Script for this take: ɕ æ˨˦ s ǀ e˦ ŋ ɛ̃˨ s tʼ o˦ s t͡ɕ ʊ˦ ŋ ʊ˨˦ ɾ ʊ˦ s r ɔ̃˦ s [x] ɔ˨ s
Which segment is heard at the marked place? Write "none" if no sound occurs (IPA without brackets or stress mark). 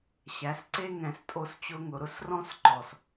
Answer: ǃ